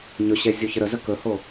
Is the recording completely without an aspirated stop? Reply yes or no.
yes